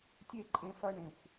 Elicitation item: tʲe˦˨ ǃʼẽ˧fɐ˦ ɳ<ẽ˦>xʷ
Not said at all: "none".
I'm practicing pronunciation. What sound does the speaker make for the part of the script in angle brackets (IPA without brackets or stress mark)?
ẽ˨